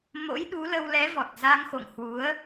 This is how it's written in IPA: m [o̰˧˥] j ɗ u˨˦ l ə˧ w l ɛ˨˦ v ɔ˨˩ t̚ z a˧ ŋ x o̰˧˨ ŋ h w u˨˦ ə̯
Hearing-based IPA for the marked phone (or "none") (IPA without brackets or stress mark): o̰˧˥